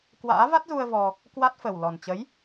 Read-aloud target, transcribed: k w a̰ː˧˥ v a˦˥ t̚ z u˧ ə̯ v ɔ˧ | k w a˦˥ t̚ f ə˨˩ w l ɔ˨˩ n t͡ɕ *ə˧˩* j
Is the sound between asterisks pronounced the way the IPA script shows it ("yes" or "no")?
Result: no